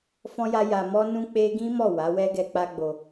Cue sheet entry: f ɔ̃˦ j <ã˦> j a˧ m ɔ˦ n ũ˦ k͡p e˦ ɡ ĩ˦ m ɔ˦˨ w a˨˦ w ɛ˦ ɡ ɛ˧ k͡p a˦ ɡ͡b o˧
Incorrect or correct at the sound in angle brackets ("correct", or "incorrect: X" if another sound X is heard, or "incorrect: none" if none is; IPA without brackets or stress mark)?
incorrect: a˦